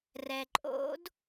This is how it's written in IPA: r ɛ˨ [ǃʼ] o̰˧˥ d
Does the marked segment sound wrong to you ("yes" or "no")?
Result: no